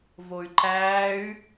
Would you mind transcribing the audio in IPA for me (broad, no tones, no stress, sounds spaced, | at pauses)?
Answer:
v o y̯ ǃ æː y̯